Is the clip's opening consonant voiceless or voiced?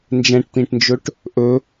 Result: voiced